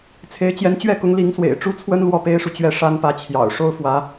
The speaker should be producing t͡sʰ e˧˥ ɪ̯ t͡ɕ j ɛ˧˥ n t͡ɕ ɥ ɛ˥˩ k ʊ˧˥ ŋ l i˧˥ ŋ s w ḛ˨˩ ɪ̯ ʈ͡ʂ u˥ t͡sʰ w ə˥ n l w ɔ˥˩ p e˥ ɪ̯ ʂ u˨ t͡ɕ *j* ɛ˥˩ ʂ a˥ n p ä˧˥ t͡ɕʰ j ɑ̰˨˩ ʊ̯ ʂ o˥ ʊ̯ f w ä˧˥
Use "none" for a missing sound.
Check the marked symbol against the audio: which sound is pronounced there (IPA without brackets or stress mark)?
ɥ